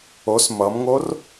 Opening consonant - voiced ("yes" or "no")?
no